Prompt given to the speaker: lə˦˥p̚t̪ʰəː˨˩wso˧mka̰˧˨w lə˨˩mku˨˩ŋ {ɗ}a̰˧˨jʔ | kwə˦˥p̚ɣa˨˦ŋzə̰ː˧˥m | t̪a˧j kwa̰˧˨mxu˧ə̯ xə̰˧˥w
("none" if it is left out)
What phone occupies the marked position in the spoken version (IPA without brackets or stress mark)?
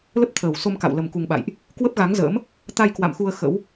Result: ɓ